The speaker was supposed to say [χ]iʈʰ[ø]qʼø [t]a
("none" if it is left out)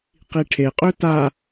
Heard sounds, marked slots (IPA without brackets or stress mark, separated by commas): q, e, t